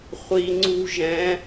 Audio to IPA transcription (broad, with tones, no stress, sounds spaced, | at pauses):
χʷ i˧ ŋ͡ǀ ṳ˥ ʒ ɛ̃˧˥